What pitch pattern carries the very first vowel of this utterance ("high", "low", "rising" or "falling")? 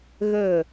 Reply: falling